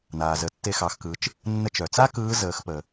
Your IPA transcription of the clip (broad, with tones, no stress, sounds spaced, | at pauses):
n aː˩ z ə˩˧ tː e˧ x ɑ˩˧ x k ɯ˩˧ t͡ʃ | nː ə˧ t͡ʃ œ˩ t͡s a˥ k ɯː˧˥ z əː˩˧ x p ə˩